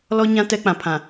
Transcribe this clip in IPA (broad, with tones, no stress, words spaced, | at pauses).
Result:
lɔ˦ɲã˦ tɛ˦k͡pã˨pʰã˨